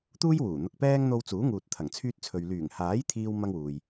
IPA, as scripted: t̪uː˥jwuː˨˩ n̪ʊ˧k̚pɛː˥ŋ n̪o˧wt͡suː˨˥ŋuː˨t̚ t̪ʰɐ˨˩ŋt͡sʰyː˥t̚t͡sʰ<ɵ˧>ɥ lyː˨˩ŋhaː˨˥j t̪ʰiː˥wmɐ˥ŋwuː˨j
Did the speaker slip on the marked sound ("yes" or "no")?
yes